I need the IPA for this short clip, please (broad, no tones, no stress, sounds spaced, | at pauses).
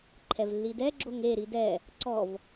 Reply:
ǃʰ ɛ v lː i d ɛ ɡ͡ǁ o ŋ e ɾ i d ɛ | ǀ ɔ v